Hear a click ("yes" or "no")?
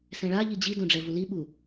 no